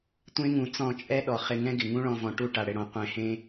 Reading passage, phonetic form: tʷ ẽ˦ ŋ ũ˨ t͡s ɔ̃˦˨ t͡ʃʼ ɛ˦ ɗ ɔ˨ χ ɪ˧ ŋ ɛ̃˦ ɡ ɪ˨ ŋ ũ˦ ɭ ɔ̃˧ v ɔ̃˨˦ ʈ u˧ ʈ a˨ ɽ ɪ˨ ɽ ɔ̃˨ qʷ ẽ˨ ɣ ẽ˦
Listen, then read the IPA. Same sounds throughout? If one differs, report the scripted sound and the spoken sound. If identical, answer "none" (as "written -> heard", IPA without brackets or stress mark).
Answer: ɣ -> h